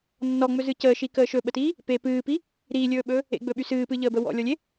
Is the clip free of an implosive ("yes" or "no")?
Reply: no